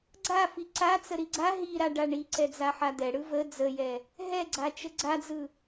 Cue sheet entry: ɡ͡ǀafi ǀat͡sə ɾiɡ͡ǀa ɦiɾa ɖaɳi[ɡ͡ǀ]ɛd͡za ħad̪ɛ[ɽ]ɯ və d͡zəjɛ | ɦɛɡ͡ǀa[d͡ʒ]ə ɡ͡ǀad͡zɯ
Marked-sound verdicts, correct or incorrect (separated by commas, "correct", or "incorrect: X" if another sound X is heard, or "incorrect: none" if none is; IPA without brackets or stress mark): incorrect: ǀ, correct, incorrect: t͡ʃ